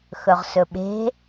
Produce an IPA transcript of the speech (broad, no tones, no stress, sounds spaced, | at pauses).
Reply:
x ɵ ʁ s ɵ ɓ e̤